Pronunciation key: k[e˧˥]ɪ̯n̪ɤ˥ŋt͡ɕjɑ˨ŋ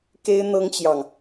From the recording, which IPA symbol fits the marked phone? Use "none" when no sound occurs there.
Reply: e˥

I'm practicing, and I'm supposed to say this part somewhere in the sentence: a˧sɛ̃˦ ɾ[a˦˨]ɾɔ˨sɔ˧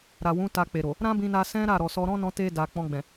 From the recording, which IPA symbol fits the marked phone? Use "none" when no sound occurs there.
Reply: a˦˨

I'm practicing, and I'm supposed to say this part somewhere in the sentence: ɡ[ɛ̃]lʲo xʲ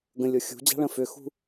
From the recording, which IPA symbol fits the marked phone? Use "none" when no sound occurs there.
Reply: ə̃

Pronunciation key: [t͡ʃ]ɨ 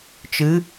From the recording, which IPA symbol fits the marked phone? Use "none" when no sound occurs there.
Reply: t͡ʃ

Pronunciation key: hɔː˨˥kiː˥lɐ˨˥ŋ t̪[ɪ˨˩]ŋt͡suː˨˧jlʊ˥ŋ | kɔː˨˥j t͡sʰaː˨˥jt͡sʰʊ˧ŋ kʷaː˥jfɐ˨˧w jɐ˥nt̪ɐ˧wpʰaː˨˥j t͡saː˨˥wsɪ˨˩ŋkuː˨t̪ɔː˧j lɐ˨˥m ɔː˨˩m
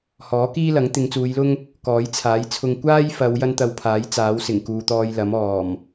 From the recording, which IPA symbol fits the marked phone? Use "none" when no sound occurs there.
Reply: ɪ˨˧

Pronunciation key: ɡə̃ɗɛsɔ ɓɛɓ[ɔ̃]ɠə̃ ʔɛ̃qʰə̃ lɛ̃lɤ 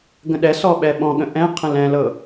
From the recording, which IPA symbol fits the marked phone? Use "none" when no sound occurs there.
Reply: ɔ̃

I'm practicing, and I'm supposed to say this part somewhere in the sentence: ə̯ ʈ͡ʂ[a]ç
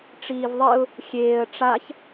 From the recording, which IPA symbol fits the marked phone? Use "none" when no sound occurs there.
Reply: a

